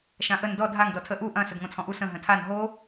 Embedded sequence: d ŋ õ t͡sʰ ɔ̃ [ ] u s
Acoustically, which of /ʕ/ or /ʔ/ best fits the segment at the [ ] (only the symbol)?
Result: ʔ